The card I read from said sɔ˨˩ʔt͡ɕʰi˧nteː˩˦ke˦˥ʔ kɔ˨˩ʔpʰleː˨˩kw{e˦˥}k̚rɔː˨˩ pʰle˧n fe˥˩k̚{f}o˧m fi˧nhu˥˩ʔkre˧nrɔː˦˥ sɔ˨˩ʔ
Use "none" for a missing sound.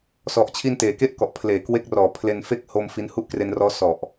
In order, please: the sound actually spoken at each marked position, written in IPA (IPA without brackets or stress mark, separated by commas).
e˦˥, h